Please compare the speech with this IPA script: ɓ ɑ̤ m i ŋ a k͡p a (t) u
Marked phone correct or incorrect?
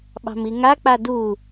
incorrect